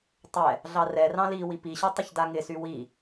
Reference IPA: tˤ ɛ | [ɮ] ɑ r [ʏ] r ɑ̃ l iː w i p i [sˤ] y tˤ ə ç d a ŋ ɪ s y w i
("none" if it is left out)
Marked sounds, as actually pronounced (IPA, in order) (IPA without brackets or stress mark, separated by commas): ɮ, ɛ, ɕ